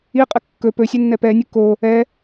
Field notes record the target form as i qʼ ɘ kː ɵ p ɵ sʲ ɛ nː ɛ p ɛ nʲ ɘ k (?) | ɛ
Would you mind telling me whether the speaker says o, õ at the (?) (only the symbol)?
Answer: o